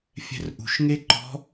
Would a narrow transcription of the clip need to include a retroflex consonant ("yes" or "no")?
no